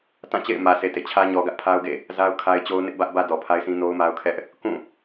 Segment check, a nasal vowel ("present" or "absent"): present